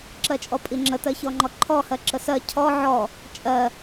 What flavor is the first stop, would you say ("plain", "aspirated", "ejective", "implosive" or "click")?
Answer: click